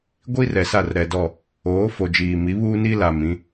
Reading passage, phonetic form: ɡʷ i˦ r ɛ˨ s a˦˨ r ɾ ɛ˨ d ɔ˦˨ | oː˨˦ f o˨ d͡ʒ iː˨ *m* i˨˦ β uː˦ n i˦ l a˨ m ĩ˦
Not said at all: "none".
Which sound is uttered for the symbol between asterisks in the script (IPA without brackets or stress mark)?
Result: m